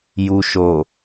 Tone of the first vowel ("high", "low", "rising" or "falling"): low